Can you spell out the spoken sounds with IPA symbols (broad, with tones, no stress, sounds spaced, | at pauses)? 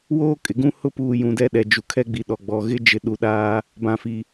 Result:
w oː˦ kʼ ɪ˨ ɡ ũ˦ h ʊ˦ p uː˨ j ũ˨ d ɛ˦ ɗ ɛ˨ d͡ʒ u˨ kʰ ɛ˦ ɡ͡b i˨ ɗ ɔ˨ ɡ͡b ɔ˨ ɣ ɪ˦ d͡ʒ ɪ˨ ɗ u˨ ɗ aː˦ | b ã˨ f i˨